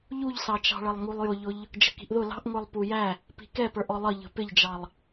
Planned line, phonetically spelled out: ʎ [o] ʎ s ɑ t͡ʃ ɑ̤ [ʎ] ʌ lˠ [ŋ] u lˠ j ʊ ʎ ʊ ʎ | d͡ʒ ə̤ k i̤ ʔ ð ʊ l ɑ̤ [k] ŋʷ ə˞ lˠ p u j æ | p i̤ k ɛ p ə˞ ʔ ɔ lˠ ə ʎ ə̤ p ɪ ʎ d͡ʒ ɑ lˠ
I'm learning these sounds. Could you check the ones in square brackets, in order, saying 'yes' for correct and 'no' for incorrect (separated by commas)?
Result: no, no, yes, no